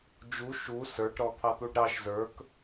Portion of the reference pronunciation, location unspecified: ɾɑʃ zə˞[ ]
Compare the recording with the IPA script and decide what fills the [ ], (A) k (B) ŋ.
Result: A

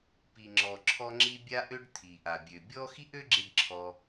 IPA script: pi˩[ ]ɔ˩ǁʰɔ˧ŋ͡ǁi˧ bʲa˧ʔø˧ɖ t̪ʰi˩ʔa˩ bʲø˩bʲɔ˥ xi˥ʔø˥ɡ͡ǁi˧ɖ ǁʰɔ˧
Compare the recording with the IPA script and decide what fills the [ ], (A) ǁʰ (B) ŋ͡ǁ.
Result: B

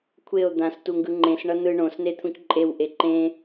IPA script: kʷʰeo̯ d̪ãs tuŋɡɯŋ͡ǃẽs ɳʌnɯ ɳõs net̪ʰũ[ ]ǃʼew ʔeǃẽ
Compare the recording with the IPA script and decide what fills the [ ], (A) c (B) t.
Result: A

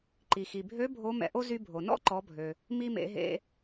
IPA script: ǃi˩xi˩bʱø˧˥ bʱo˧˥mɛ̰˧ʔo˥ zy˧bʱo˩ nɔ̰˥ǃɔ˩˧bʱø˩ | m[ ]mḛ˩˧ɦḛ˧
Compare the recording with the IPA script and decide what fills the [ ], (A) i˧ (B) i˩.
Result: A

